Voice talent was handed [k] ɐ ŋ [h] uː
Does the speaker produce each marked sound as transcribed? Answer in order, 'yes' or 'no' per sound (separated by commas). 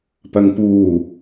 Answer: no, no